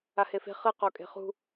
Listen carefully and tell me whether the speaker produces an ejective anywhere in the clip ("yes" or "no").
yes